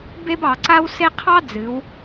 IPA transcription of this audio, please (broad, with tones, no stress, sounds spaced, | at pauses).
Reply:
b e˥ b ɑ˩˧ ǀ a˥ w s e˥ qʰ ɑ˥ d͡z ɨ˩˧ w